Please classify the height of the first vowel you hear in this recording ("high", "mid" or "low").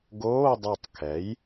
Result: mid